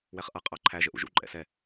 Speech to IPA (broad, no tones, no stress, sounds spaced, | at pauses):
w ɛ χ ʔ ʌ qʼ ɑ ǃʰ æ ʒ ə ʔ ṵ ʒ ṵ ǃʼ ɛ̰ s ɛ